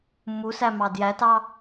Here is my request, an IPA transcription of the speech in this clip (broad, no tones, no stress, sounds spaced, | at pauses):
m u s æ m ɑ d j æ t ɑ